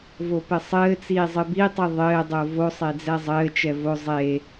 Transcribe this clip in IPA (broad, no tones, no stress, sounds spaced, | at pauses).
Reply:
v o p ɘ sˤ ɘː t͡s iː zˤ ɨ b i tˤ ɨ ðˤ ɘː dˤ o v o sˤ e d͡z ɛ zˤ ɘː t͡ʃ ɛ v o zˤ e